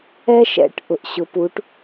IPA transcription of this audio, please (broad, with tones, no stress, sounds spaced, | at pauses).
ɛ˦ ʃ ɛ̰˩˧ ʈ ʔ ʊ˩ ʔ ɕ ʊ˩˧ p u˩˧ ʈ